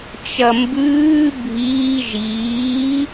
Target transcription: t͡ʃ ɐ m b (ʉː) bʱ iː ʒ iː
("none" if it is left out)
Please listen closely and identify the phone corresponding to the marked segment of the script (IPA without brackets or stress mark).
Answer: ʉː